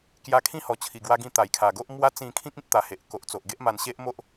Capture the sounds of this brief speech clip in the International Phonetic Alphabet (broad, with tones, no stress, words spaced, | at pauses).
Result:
kja˧kʰĩ˦hɔ˨˩ t͡ɕʰi˨˩ɡwa˧ ɡĩ˧ t̪a˨˩jkʰa˨˩ɡo˦ʔmwa˦ t͡sĩ˧kʰĩ˦k̚ ĩ˦t̚t̪a˨˩he˨ʔ ko˨ʔt͡so˨ʔɡe˦ʔma˧n ɕe˦ʔmo˦ʔ